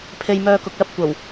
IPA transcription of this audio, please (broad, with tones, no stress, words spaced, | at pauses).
pʰe˧j mœː˧kʊ˨k̚lɐ˥p̚ kʷɐ˨˩w